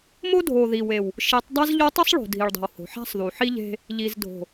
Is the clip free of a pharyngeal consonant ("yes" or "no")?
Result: no